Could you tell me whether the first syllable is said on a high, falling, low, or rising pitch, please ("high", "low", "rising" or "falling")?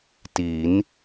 rising